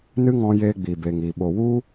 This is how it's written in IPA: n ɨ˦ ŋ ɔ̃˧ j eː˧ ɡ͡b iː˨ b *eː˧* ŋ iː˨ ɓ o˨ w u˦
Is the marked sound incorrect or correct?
incorrect